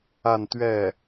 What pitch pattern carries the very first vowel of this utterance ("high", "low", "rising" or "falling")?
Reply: falling